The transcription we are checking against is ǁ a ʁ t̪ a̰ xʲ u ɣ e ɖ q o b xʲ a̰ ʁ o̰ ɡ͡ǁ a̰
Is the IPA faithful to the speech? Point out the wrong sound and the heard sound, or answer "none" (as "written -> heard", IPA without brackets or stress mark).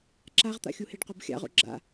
ɣ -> h